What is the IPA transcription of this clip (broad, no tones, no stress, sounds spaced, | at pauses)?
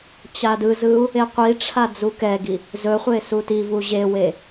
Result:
t͡ɕ a d ɯ z ɯ u̯ | e qʷ i ʈ͡ʂʰ a d͡z u k ɛ ɡ i | z ɵ χʷ e s u t i v u ʑ e w e